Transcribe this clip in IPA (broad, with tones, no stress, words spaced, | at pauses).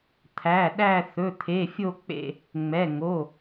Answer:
t̪ʰæ˩˧˩ɗæ˦˨ θɵ˩˧˩t̪ʰe˩˧˩fʲo˦˨ k͡pḛ˦˨ | ŋ͡mɛ˩˧˩ ŋo˩˧˩